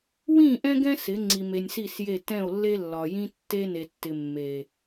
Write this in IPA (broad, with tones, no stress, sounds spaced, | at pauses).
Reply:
w ĩ˦˨ ʔ ɛ̃˦ ɡ ɛ̃˦ s ɪ˨˦ ŋ͡ǀ i˨ m e˨ nʲ s i˦˨ s j e˦˨ t ɛ̃˦˨ o̯ lː e˦ lː ɒ˨ j ĩ˦ tː e˦ n e˨ tː ɪ˨ mː e˨